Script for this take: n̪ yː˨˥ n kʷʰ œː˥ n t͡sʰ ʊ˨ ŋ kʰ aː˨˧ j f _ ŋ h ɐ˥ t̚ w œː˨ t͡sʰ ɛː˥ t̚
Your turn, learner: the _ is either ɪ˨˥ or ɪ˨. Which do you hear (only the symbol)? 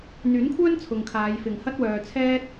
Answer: ɪ˨